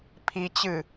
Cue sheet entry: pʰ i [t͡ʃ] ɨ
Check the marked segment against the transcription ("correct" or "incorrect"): incorrect